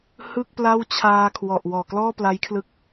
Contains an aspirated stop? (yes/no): yes